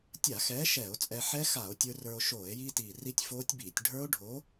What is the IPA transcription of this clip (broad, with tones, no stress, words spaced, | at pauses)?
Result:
tʲa˧˩˧xɛː˨˥ ʃɛː˧˩˧o̯t͡sʼɛ˧ ħɛ˦˥xa˧˩˧o̯ tʲə˞˧ rə˞˧o̯ʃoː˧˩˧e̯ jiː˧tiː˨˩ ri˦˥tʲfoː˦˥tʲbiː˧˩˧tʲ ɖʱə˞˦˥o̯ɖʱo˨˥